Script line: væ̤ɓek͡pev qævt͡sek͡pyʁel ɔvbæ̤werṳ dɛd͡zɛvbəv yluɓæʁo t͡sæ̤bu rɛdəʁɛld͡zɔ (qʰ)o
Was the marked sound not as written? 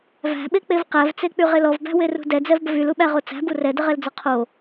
no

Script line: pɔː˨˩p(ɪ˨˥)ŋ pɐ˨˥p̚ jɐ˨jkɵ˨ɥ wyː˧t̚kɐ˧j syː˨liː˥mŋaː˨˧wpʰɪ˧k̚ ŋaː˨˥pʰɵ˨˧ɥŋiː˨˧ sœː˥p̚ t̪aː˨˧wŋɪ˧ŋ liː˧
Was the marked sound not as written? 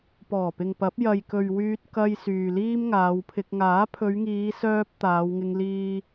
yes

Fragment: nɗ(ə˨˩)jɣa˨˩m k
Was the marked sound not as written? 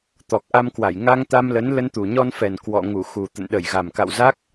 yes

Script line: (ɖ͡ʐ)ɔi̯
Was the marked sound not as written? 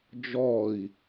yes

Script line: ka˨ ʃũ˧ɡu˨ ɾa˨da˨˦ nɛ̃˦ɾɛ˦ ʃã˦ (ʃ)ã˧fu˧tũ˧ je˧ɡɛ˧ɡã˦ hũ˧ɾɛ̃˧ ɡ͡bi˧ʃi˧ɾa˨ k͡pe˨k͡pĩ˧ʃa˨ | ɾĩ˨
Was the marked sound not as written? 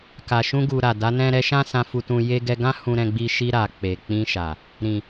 yes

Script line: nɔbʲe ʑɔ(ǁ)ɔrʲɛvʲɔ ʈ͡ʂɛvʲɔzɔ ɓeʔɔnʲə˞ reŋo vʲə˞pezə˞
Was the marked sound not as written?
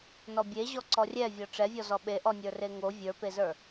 yes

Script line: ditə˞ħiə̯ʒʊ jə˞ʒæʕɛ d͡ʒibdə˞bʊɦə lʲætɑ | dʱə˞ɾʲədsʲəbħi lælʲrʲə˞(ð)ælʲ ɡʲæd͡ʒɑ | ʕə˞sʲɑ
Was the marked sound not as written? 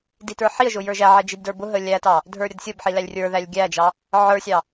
no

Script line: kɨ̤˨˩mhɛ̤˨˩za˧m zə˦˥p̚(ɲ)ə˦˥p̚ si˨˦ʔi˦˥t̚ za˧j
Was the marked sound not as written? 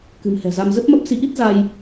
yes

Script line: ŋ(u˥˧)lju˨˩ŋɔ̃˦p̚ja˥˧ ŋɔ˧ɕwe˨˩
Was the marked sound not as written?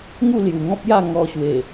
no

